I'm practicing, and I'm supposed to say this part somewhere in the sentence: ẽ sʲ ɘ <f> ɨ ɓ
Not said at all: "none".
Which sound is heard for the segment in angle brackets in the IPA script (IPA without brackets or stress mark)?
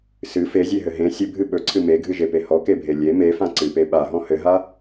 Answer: bʱ